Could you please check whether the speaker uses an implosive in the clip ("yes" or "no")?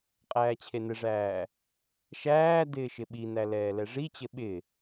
yes